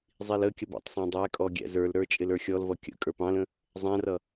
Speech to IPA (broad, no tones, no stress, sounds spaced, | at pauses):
zˤ i l ə kʲ ə b æ̰ tˤ sˤ ɑ̃ dˤ æ kʼ ɔ ɡʲ æ̰ z ə˞ l ɾ ə˞ t͡ʃʼ ɪ l ə˞ xʲ ɔ l v ʌ kʲ ə̰ kʼ ə˞ p ɑ̃ l ə̃ | zˤ æ̃ r ʌ